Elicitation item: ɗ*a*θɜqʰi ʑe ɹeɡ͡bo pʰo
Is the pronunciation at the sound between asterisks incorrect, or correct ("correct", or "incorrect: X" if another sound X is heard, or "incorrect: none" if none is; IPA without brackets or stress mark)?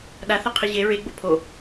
correct